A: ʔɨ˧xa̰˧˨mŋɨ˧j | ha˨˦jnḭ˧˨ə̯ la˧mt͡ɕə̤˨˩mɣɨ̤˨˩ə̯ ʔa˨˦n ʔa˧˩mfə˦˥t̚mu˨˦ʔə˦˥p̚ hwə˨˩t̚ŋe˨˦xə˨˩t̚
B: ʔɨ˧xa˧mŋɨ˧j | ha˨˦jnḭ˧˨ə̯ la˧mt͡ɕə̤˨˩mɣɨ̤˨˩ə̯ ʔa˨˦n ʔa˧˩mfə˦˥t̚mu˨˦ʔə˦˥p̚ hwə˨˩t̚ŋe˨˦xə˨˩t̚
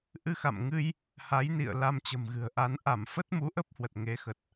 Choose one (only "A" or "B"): A